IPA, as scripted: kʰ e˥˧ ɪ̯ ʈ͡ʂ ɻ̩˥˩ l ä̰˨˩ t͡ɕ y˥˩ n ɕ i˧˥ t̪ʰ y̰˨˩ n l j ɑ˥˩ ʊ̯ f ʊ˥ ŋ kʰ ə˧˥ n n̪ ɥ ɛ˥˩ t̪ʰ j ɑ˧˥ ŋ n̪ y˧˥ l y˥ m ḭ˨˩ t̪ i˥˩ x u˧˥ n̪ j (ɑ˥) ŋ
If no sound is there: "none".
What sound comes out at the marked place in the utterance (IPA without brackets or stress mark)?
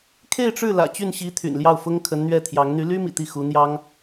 ɑ˥